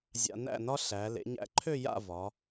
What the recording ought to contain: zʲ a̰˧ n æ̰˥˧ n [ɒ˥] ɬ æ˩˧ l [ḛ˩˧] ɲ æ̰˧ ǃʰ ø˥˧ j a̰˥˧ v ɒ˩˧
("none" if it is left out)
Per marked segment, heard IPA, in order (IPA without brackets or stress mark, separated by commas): ɒ˥, ḛ˩˧